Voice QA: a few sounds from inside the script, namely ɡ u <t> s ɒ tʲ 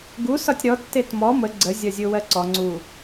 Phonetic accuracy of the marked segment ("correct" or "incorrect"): incorrect